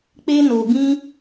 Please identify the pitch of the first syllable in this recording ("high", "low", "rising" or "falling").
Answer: high